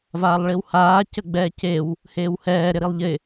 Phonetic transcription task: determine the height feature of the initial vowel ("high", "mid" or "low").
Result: low